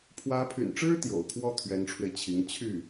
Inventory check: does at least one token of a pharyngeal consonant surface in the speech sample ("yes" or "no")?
no